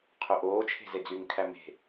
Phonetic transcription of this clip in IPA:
qʰøʔoː t͡ʃʰe̤zed͡zyŋ kʰæme̤

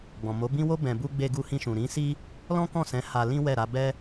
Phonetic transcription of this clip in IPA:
ɡ͡bɔ̃˨mo˨˦bĩ˦ wo˦ bɛ̃˧bu˦ ɡ͡be˧ɡu˧hĩ˧ʃũ˨ ɾĩ˨˦si˦ | lɔ̃˦kɔ̃˦˨sɛ̃˨˦ ha˧lĩ˦ wɛ˦˨ɾa˨˦ bɛ˦

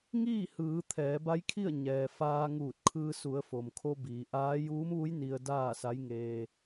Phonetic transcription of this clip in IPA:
ŋiː˥˨hɯː˩˧ t̪ʰɛː˩˧ba˧˥jkʰi˥˨ə̯ ɲɛː˩ faː˧ ŋuː˧˩t̚ kʰɯː˧su˩˧ə̯ fo˩mkʰo˧ biː˩˧ʔaː˧˥ juː˧˥mʋu˧˥j ni˧ə̯ daː˥˨sa˧˥jŋeː˧

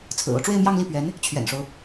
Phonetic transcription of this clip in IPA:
t͡sʰɹ̩˨˩o˦ʊ̯ ʈ͡ʂwe˥˧ɪ̯mjɑ˥˧ŋli˥˩pɥɛ˧˥n | t͡ɕʰɥɛ̰˨˩nʂo˦ʊ̯

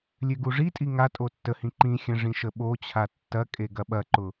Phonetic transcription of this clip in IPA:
lʲøɡuʐitʼi ŋa tʼotːəhĩ ǃĩxʲɐ̃ ʐĩʃəɓot͡ɕʰa tːɐkʼe ɡɐɓɐǃʊ

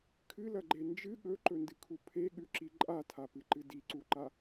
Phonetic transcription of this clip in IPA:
kʰɨlɐɡ͡ǃe nd͡ʒɨ ɠɵǃɵndɨkʰu pʰeɠʉǁi ǃʼatʰapɨǃɨ diǀuǃa

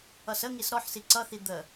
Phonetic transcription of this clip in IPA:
ʌsəŋis ɾɔħsi ǀʌθi d̪ə

